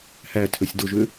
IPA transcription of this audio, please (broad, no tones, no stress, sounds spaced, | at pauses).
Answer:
h æ tʰ ø sʲ d o ʒ ø